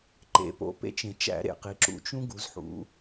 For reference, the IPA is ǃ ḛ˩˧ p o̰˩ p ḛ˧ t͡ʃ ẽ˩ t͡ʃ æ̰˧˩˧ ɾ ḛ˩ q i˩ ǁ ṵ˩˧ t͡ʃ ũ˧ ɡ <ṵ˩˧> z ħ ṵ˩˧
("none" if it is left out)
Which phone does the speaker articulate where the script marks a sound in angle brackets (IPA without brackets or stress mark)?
u˩˧